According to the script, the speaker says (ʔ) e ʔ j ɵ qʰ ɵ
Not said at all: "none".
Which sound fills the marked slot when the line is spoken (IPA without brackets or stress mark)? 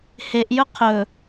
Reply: h